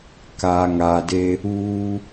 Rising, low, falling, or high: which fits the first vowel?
low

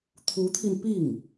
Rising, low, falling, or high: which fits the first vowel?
rising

